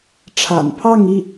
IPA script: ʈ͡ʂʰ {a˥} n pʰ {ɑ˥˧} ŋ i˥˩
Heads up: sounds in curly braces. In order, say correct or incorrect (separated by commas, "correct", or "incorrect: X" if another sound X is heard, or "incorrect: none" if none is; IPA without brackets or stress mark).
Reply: incorrect: a̰˨˩, correct